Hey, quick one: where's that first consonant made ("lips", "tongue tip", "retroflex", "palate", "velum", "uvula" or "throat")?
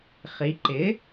uvula